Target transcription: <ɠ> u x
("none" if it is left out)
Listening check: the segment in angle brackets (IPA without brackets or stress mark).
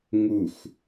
ŋ